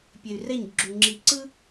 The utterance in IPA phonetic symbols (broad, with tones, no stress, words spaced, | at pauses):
pʲe˨y̯rɛ˦˨ɲɡ͡ǁu˨ ŋ͡ǁi˨ǀɯ˦